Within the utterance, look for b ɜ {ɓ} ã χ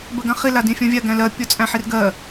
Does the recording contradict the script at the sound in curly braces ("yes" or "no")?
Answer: yes